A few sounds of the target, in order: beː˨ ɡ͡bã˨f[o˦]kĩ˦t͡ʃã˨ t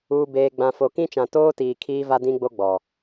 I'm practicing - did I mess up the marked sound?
yes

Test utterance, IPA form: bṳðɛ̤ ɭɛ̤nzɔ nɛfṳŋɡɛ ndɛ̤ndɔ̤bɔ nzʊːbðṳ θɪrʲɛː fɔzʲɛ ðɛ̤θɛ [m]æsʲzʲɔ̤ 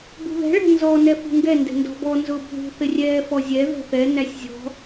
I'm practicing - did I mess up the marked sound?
yes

